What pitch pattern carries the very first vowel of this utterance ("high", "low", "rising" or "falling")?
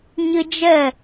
high